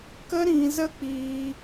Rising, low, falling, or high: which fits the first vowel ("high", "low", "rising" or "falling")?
high